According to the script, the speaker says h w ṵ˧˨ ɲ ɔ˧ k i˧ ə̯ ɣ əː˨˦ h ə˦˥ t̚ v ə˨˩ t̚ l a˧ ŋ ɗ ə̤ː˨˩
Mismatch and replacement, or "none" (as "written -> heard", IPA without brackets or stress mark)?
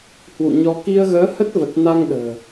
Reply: l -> n